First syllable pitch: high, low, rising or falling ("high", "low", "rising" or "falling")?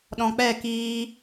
low